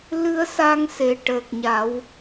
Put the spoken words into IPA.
l ɨ˧ ə̯ s a˧ ŋ s e˨˩ ʈ əː˨˩ k̚ ɲ a˨˩˦ w

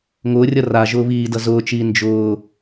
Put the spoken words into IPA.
ŋ ʊː rʲ ʌ r a ʒ ʊː β iː d ʌ z ʊː t͡ʃ iː n d͡ʒ ʊː

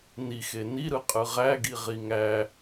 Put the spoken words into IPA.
n i x e n i ɾ ɯ qʼ ɯ ʁ æ ɡ i ʁ i ŋ æ

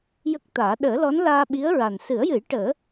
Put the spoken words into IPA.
j ə˦˥ k̚ t̪ aː˨˩˦ ɗ əː˨˩˦ l ɔ˧˥ n l aː˧ ɓ i˧˥ ə̯ ɹ a˨˩ n s ɨ˨˩˦ ə̯ j ɨ˨˩˦ j ʈ əː˨˩˦

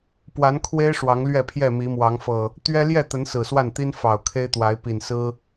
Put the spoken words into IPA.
p w a˨˦ n kʰ w e˦ ɪ̯ ʂ w ɑ˨˦ ŋ l ɥ ɛ˥˨ pʰ j ɛ˥˨ m i˨˦ m w ɑ˨˦ ŋ f ɤ˨˩ | t̪ ɥ ɛ˦ l j ɛ˥˨ t̪ ə˨˦ n s ɹ̩˨˩ s w a˥˨ n t̪ i˦ n f ɑ˨˩ ʊ̯ kʰ e˦ ɪ̯ t̪ w a˨˦ ɪ̯ p i˨˩ n s ɹ̩˦

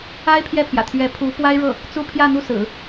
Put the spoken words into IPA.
a˥ ɪ̯ pʰ j ɛ˥˩ pʰ j ä̰˨˩ t̪ʰ ɥ ɛ˧˥ pʰ u˧˥ p w a˥ ɪ̯ ɻ ɤ˥˩ | t͡s u˥˧ pʰ j ä˥˧ n̪ u˥˩ s ɹ̩˨˩˦

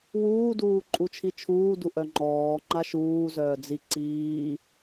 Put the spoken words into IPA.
w uː d uː ǃʼ u t͡ʃʰ i t͡ʃʰ uː d u ʔ œ ŋ͡ǃ ɔː ŋ͡ǃ a ʃ uː z œː d͡z i ǀ iː

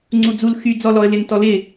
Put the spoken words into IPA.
ŋ͡ǀ u d͡z u l x y d͡z ɔ l ɔ ə̯ l ɪ n t ɔ l ɪ

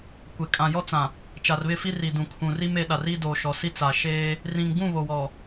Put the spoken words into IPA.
kʷ e˨ kʼ ã˨ j ɔ˦ t͡s ã˨ | t͡ʃ a˨ r β ɪ˦˨ f i˦ r i˨ d ũ˨ kʰ ũ˨ r i˦ m e˨˦ ɗ a˨ r i˦ d o˨ ʃ ɔ˨ s i˦ t͡s a˨ ʃ eː˦ | r ĩ˨ ŋ ɡ ũ˦˨ β o˨ w ɔ˨

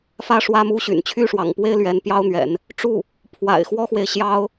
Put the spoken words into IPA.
f ä˥˩ ʂ w ä˥ m u˥ ɕ y̰˨˩ n t͡ɕʰ y˥˩ ʂ w ɑ̰˨˩ ŋ p w e˥ ɪ̯ l ɥ ɛ˧˥ n p j ɑ˥ ʊ̯ n̪ ɥ ɛ̰˨˩˦ n | ʈ͡ʂ u˥˩ | pʰ w a̰˨˩ ɪ̯ x w ɔ˥ x w e˨ ɪ̯ ɕ j ɑ˥ ʊ̯

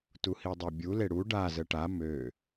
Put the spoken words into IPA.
t u h i dˤ e bʲ u l e ɽ u ɖ a z ə ʈ a m ø

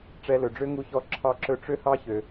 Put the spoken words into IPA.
ʈ͡ʂ ɛ˧ l ɵ˩ ɖ͡ʐ ø˥ ŋ u˧ ç ɔ˧ ǁʰ ɑ˧ ǁ ɵ˧ ʈ͡ʂ ø˥ h ɑ˥ ç ø˩

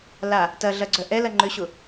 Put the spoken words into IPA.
l a | t ɐ ɮ ɐ ɡ͡ǀ œ ʔ ɛ l ɐ ŋ͡ǃ ʏ ɕ ʊ

